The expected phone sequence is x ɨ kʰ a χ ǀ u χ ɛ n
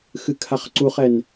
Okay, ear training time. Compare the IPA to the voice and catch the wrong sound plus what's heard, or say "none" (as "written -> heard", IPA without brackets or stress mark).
none